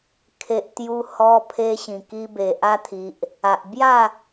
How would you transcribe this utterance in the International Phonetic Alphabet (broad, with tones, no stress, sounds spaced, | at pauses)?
kʰ e˨ ʔ t̪ j u˧ h ɔ˧ pʰ e˧ ɕ ĩ˨˩ k i˧ b e˨ ʔ a˧ t̪ʰ i˨ ʔ | a˨ ʔ b j a˥˧